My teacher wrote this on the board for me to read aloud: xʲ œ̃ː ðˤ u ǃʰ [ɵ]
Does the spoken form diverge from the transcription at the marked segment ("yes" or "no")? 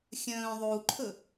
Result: no